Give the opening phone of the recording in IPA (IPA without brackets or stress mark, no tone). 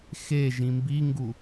x